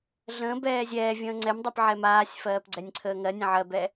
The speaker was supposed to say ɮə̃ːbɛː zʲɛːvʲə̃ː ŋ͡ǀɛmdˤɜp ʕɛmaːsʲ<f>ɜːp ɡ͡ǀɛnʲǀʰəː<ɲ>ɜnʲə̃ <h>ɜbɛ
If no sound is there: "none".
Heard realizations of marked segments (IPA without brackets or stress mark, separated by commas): f, ŋ, ʕ